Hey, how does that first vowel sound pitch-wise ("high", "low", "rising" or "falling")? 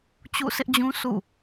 falling